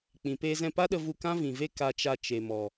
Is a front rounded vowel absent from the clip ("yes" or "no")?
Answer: yes